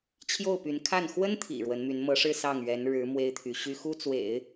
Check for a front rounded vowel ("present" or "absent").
present